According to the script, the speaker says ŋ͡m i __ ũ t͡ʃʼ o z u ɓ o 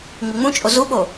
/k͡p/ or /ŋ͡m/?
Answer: ŋ͡m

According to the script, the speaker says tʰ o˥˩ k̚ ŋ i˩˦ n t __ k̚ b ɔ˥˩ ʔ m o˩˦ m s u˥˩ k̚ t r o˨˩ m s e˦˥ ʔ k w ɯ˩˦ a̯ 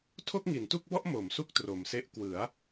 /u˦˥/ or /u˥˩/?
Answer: u˥˩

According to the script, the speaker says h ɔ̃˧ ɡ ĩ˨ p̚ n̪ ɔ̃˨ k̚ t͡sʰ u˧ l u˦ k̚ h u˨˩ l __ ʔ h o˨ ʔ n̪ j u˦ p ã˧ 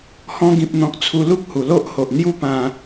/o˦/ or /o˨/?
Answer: o˦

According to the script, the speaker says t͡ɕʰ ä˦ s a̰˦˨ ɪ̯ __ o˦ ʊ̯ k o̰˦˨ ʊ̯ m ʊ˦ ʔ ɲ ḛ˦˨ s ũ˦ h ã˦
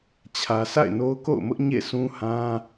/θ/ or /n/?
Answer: n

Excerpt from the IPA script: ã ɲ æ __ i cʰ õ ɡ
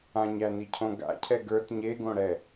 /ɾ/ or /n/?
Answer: n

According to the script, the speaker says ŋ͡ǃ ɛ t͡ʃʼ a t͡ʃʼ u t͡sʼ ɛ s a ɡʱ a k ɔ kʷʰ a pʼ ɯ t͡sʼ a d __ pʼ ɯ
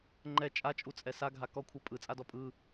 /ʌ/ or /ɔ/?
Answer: ɔ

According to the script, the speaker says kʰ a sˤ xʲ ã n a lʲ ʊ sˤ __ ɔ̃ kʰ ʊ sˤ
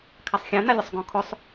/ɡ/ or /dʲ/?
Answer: ɡ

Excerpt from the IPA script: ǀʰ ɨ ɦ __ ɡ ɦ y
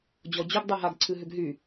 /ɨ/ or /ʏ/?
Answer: ʏ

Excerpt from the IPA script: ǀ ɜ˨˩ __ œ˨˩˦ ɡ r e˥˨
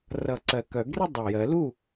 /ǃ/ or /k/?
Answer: k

